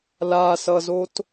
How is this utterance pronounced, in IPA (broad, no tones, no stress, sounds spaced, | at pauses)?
l a s ʌ z o t